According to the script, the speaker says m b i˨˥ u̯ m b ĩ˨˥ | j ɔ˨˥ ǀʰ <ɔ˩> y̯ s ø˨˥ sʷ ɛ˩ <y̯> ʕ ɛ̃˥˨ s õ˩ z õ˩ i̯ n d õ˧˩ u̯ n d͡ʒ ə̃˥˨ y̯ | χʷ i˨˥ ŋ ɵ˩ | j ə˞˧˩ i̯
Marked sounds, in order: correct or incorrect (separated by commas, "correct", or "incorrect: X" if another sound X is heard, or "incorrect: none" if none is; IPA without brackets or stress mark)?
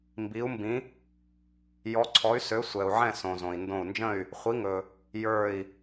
incorrect: ɔ˨˥, incorrect: u̯